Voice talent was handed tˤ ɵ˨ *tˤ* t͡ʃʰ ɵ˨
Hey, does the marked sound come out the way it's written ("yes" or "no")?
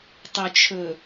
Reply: no